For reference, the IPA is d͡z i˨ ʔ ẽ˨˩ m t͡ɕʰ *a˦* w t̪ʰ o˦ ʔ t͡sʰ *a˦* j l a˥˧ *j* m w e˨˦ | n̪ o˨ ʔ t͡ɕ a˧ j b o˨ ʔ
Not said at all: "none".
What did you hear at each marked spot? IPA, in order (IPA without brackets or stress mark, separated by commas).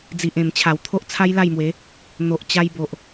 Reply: a˨˩, a˦, j